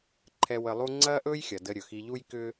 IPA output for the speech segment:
ǃʰɛ˧ wə˧lˠu˥ ŋ͡ǀɐː˥ʔɵː˥jxʲɐ˩ də˧ɾʲɵ˩xi˧ʎu˥j kʏ˥

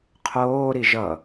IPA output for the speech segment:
qʰoːɾi ʒʌ

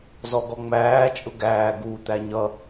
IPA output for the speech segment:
zɔɡɔŋ͡mæː t͡ʃʼʊɡæː ɡuːt̪æɲʌ

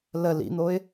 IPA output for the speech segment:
lə lḭn̪oɪ̯

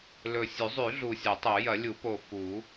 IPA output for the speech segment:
lɵ˨˩sʲʉ˨˩˦zˤʉ˨˩˦ ɮu˨˩sʲɐ˨˩˦tˤo˨˩˦ jɐ˨˩˦lʲu˨˩˦po˨˩ fu˨˩˦

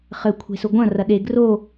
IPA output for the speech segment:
χɘkʷʰe̤sʊ ɡʷɐ̃ rɐɗe ɡro

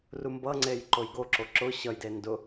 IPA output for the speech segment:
rumbʌŋ͡ǀej ǃojɡoǁo ǁʊ ɕʌjde ndʊ

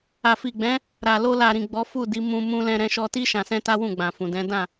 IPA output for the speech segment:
a˨fi˨ɡ͡bɛ̃˨˦ | ɾa˨ lo˧la˨ɾĩ˨ ɡ͡bɔ˨˦fu˦˨di˨˦ mũ˧ mũ˧lɛ̃˧ɾɛ̃˧ ʃɔ˧ti˦ ʃã˧sɛ̃˦ta˦wũ˦˨ ɡ͡bã˨fũ˨dɛ̃˨˦ dã˦˨

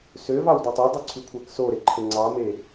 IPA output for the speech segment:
sø vɑwdotˤedˤy ǀʰykʷʰæksoɾe ǃʰeŋ͡ǀɑme

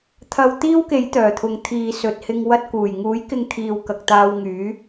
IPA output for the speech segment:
t̪ʰɐ˧wt̪iː˥wke˨˥j t̪œː˨˩t̪ʰʊ˨ŋ t̪ʰiː˨sɵ˨t̚hɪ˧ŋwɐ˧t̚ kuː˨˩jŋuː˨˥jkɪ˧ŋ t̪ʰiː˨wkɐ˨k̚t̪aː˧w ŋyː˨˥

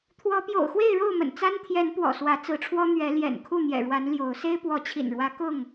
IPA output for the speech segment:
t̪ʰwɔ˨˦pjo̰˨˩ʊ̯xwe˥˨ɪ̯ ɻo˥˨ʊ̯mə̰˨˩n t͡sa˦n t̪ʰjɛ˨˦n pwɔ̰˨˩swä˨˦t͡sɹ̩˨˦ʈ͡ʂʰwɔ˦ n̪ɥɛ˨˦ ljɛ̰˨˩nkʰu˥˨n̪jɛ̰˨˩ɻwa˨˦n ljo˨˦ʊ̯ se˦ɪ̯pwɔ˨˦t͡ɕʰḭ˨˩nɻwä˨˦ kʊ˥˨ŋ

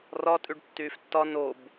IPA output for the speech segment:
rɒ tʼyɖtːyːftːɒ nob

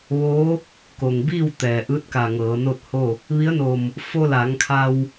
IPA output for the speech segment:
ʋoː˧˥ | ko˩ŋbiː˥˨w t̪ɛː˩ʔɯː˧˥t̚ka˧˩ ŋɤː˩˧ no˥˨t̚ho˥˨ | ʋi˧˥ə̯no˧˩m | fo˧la˩˧ŋkʰa˧w

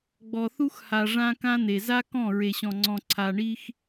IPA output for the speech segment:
ɡ͡bɔ˨θu˦xha˨ ʐã˦kã˦n̪e˨ za˦kɔ̃˦˨ ɹe˨ɕɔ̃˨ŋ͡ǀɔ̃˨ ǀʰa˨ɳi˦x

